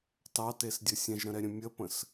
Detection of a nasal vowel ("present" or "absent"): present